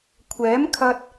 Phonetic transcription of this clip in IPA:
kʷʰ ɛː˨˥ m kʰ ɐ˧ t̚

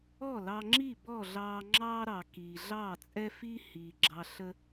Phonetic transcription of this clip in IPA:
ɔ˥˩ l ɑ˧ ŋ͡ǁ i˥˩ b ɔ˥˩ ɮ ɑː˧ ŋ͡ǁ ɑː˥ ɾ ɑ˩ k iː˩ ɮ ɑː˥˩ t͡sʼ ɛ˥ f i˥ h iː˩ ɡ͡ǁ ɑ˧ ɬ ə˥

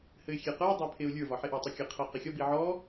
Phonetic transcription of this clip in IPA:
h ɘ ɪ̯ xʲ e q ə˞ dˤ ə˞ pʰ e ʊ̯ lʲ ə˞ v ɒ ħ e ʔ ɒ tˤ ɘ kʲ ɘ qʰ ɤ q ɘ xʲ ɒ b i ʕ ɔ

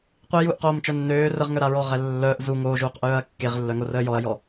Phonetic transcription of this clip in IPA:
qʷ i j uː ʔ q oː m t͡ʃ œ nː øː r ə ʁ ŋ œ ɾ a ɹ ɔ ʁ ɛ lː œ ʔ z u ŋ oː ʒ uː q ʔ œː ɐ̯ kː e ʁ lː œ ŋ o r əː j ɔ ɐ̯ j ɔ

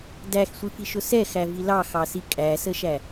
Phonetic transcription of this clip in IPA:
d æ x sʷ i f i ʃ ʊ s ɛ x æ v i l ɑ x ɑ s i kʼ æ s ə ʃ æ

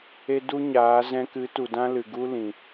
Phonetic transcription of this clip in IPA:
e˧ d u˦ ɲ aː˨˦ z ɛ̃˧ k ɨ˨˦ t u˨ d ã˦ l ɨ˨ ɡ u˦ l ĩ˨

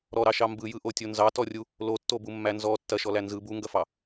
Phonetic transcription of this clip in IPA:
ɾ ɔ ɾ ɑ ʃ ɑ m b ɯ j ɯ ʔ o tʲ o n z ɑ t ɔ rʲ u | l o tː o b u mː æ n z ɔ tː ɐ ʃ ɔ l æ n z ɯ b u ŋ ɡ ɐ f ɑ

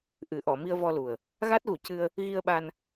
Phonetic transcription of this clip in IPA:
ʔ ɨ˨˩˦ ʔ ɔ˨˩˨ m i˧ ə̯ v ɔ˧ l u˨˩ ə̯ | ɣ a˦˥ t̚ ɣ u˨˩˦ c ɨ˧ ə̯ | ɣ i˧ ə̯ ɓ a˧ n

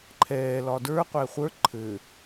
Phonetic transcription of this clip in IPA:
ǃʰ ɛː l ɒ d ə˞ qʷ ɛ χʷ ə˞ ǃʰ ɘ

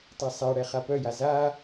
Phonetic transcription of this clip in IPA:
tˤ ɛ sˤ a ɽ ɛ χ a p œ j a z a

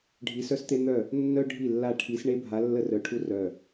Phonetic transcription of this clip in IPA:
ɖʱ i˧˥ s œ˥ s t̪ e˥ n̪ œ˥˩ | nː œ˥ ɖʱ i˥˩ lː a˥˩ ʈʰ i˧˥ s ɳ e˥ bʱ a˧˥ lː ə˥ r œ˧˩ ʈʰ u˥ r œ˧˩

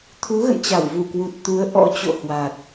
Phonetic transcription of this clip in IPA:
t̪ʰ u˨˦ ɣ ə̰˧˨ n t͡ɕ a˧˩ w v u˧˩ k w u˨˩ t̚ t̪ u˨˦ ə̯ ʔ ɔ̰˧˥ t͡ɕ o̰˧˨ h w a˨˩ t̚

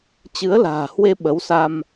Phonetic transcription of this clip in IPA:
t͡ɕ ɨ˨˦ ə̯ l a̤ː˨˩ h w e˧ ɓ ə˨˦ w s a˧ m

